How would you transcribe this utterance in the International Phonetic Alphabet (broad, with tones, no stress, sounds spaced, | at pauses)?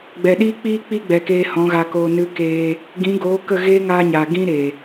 ɡ͡b ɛ˨ ɗ iː˦ k͡p iː˦ k͡p i˦ ɡ͡b ɛ˨ k eː˧ h ɔ̃˨˦ ɣ a˧ k oː˧ n ɨ˧ k eː˧ | ɡ ĩ˨˦ ɡ oː˨˦ k ə˦˨ ɣ eː˦ ŋ aː˦ ɲ a˨ ɡ ĩ˦ ɾ e˨